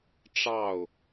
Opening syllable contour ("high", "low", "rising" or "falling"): falling